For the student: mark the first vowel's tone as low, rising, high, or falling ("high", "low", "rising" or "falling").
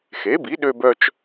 rising